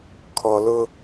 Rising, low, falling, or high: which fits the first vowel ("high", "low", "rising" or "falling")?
low